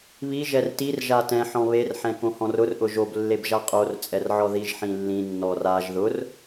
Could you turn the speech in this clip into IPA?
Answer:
β i ʒ ɛ r t i r ʒ a t ɛ̃ ħ ɔ̃ β e r ħ ɛ̃ k õ h ɔ̃ r ʊ r ʔ ʊ ʒ o b lː e b ʒ a qʼ o r t͡sʼ ɛ r ʕ ɔ ð i ʒ ħ ĩ lː ĩ nː ɔ r a ʒ ð ʊ r

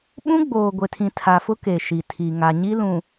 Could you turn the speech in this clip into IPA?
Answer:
ɓ ũ˦ ɡ͡b oː˨ ɡʷ e˨ tʰ ĩ˨ tʰ a˨ f ʊ˦ k e˨ ʃ i˨ tʰ i˨ ŋ a˨ ɲ i˦ l ũ˨

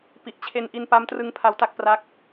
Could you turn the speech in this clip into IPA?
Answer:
p i˨˩ ʔ t͡ɕʰ e˧ n ʔ i˧ n p a˦˥ m t r ɯ˦˥ ŋ pʰ a˦˥ w t a˥˩ k̚ p r a˦˥ k̚

